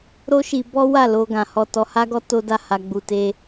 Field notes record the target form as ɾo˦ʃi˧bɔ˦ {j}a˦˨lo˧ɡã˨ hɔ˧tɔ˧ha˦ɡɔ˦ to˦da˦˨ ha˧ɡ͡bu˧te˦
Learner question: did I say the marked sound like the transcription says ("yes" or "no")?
no